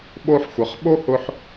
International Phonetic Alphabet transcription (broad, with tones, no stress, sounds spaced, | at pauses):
ɓ o˦ ħ xʷ ə˨˦ χ ɓ o˦ h ʊ˧ ħ